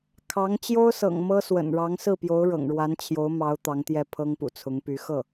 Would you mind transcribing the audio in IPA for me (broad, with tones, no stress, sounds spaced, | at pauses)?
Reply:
kʰ ɑ˧˥ ŋ t͡ɕ j o˥ ʊ̯ s ɤ̰˨˩ ŋ m ɤ˥ s w ə̰˨˩ n ɻ ɑ˧˥ ŋ s ɹ̩˥˩ p j o˧˥ ʊ̯ ɻ ɤ̰˨˩ ŋ ɻ w a˧˥ n t͡ɕʰ j o˧˥ ʊ̯ m ɑ˧˥ ʊ̯ t̪ ɑ˧˥ ŋ t̪ j ɛ˥˩ pʰ ɤ˥ ŋ p ṵ˨˩ t͡sʰ ʊ˧˥ ŋ p y˧˥ x ɤ˥˩